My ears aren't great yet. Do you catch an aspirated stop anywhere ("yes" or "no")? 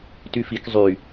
no